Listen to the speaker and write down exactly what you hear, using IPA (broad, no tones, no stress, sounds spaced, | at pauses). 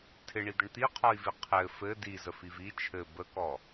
tʰ ɪ ɳ i d̪ ə ɳ t̪ i qʰ ɔ i̯ v i qʰ ɘ f ɘ d i z ə f i v i t͡ʃʰ ɘ b ə k ɔ